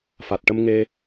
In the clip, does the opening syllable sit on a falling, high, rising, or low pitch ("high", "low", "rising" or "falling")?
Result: low